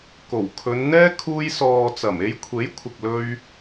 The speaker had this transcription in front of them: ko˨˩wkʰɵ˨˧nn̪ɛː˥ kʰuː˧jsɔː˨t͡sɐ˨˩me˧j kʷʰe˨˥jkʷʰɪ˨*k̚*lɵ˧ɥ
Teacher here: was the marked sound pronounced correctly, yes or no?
yes